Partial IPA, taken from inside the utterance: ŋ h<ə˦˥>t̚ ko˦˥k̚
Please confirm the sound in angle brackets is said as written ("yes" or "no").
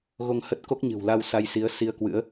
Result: yes